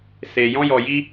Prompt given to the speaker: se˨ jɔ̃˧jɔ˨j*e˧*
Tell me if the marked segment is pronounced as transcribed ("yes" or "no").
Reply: no